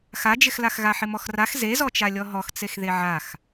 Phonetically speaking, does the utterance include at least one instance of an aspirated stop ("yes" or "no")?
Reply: no